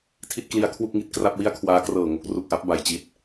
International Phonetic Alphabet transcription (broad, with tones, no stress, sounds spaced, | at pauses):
tʰ i˥˩ t̚ k l i˧ a̯ kʰ w u˥˩ k̚ ŋ i˨˩ t̚ k r a˥˩ p̚ w i˥˩ a̯ kʰ w aː˦˥ k r ɤː˨˩ ŋ o˦˥ k̚ r u˨˩ k̚ ʔ a˦˥ p̚ b a˨˩ j t͡ɕ i˦˥ t̚